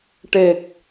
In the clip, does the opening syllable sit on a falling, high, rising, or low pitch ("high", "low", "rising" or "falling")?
low